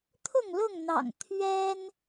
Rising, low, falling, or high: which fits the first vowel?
falling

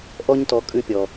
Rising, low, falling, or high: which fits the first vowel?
high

